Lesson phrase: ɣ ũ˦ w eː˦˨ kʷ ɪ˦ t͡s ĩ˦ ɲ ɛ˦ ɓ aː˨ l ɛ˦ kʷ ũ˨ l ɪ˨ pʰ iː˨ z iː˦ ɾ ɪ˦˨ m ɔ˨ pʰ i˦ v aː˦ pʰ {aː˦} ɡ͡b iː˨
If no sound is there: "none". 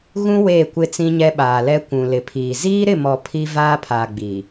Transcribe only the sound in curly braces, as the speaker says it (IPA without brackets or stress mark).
aː˨